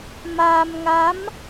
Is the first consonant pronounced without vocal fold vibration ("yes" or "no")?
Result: no